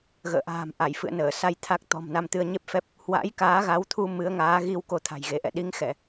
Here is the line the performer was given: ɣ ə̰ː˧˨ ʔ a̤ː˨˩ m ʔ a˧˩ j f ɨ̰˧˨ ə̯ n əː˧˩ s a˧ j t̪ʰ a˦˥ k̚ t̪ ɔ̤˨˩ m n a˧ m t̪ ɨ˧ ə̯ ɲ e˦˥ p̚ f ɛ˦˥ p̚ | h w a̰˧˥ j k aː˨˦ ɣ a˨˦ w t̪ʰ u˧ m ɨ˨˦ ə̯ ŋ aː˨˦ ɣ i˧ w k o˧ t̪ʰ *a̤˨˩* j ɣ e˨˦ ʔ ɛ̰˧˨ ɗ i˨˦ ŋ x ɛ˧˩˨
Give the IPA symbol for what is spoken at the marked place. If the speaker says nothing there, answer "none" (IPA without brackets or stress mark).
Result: a̤˨˩